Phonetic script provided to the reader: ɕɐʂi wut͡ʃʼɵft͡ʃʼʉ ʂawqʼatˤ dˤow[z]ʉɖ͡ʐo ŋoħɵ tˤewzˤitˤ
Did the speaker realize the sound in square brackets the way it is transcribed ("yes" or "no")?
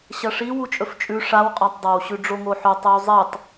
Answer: no